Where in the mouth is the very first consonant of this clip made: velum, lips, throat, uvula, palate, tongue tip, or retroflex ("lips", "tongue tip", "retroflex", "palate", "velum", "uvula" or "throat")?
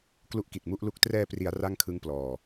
velum